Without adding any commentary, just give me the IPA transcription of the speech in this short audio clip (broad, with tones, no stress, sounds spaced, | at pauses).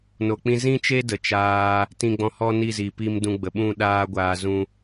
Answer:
n o˨ k͡p ĩ˧ z ĩ˦ t͡ʃ e˦ d ə˨ t͡ʃ aː˧ | t ĩ˧ ɡ͡b ɔ̃˧ h ɔ˦ n i˦˨ z i˨ p i˧ m d ũ˧ ɡ͡b ə˨ ɓ ũ˦˨ ɗ aː˦ ɡʷ aː˧ z ũ˦